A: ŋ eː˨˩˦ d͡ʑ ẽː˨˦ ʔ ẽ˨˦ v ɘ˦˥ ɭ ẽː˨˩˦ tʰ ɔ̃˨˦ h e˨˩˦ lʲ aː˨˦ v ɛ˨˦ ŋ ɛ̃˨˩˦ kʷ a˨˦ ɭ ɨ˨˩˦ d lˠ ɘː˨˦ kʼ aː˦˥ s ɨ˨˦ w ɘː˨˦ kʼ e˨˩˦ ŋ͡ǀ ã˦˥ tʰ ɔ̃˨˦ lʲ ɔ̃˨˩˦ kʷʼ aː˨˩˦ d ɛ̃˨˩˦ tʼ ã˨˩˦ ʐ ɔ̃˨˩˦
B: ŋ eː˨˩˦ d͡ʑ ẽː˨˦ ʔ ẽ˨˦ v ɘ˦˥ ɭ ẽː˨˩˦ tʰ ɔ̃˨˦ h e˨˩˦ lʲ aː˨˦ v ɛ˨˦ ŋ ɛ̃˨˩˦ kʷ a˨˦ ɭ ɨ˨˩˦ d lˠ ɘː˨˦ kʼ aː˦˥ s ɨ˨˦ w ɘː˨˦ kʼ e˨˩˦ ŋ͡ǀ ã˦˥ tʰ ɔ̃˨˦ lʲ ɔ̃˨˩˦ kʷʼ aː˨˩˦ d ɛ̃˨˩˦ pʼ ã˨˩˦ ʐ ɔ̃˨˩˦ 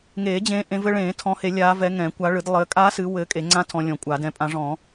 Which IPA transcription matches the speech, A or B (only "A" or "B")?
B